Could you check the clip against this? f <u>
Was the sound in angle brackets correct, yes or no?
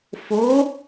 no